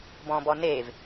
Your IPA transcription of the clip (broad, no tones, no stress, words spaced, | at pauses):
bɔ̃bɔnev